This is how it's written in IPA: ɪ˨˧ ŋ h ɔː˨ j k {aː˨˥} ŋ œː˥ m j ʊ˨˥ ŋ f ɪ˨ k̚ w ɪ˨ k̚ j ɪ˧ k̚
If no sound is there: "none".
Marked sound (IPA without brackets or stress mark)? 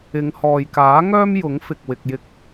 aː˨˥